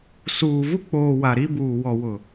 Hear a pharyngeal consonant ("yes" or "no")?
no